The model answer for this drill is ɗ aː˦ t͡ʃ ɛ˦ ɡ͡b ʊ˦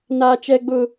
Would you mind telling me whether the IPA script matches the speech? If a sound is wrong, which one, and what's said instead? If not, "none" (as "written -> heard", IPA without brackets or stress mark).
ɗ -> n